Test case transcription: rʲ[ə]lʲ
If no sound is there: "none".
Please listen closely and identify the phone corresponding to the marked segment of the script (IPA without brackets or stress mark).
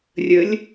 ə